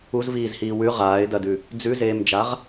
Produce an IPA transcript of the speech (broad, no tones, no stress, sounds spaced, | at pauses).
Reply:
u z v iː z h iː w ʉ ʁ aː ɪ̯ d ɐ d ʉ | d͡z ʉ z eː m d͡ʒ a ʁ